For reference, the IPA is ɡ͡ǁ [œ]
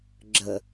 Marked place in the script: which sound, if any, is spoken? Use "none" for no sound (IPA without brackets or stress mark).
ə